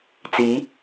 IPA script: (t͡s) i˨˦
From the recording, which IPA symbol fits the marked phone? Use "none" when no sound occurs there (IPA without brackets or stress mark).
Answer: t͡s